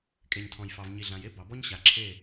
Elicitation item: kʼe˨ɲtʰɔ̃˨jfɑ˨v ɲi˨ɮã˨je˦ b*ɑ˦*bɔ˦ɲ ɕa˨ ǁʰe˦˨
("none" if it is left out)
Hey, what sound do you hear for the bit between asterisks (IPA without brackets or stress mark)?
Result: ɑ˨